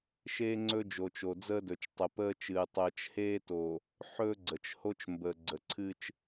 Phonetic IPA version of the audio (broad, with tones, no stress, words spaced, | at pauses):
ʃeː˦ŋ͡ǀɵ˦ d͡ʒoː˨t͡ʃo˨d͡zəː˦dɵ˨t͡ʃ tˤə˨pəː˦t͡ʃɨː˨ tˤəː˨t͡ʃheː˦to˨ | ħɵː˦ɡ͡ǀə˨t͡ʃho˦t͡ʃmbəː˨ ɡ͡ǀə˨ǀʰɨ˦t͡ʃ